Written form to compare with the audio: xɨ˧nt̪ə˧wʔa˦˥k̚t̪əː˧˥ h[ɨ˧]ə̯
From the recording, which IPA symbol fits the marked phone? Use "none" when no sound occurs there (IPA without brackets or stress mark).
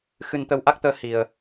i˧